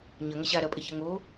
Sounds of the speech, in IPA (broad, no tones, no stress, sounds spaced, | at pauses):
ɲ ɐ ŋ ɐ ɕ a ɾ ɐ pʼ e ç ɐ ŋ o